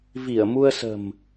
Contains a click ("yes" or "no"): no